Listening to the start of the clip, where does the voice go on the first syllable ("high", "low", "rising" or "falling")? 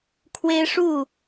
high